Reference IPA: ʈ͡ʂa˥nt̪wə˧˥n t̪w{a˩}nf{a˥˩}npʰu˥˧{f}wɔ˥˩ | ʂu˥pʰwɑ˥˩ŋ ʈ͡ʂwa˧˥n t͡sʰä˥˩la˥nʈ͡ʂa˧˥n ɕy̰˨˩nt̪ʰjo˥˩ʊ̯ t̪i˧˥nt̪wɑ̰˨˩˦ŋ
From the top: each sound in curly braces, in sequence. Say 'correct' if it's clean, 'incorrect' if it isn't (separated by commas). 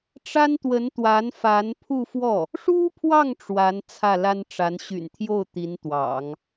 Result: incorrect, incorrect, correct